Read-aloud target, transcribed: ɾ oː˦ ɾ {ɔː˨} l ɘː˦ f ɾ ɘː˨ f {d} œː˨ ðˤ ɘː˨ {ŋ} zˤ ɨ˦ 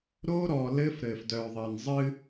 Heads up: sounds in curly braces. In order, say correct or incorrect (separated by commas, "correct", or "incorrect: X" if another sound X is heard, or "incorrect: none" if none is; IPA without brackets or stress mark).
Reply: correct, correct, incorrect: n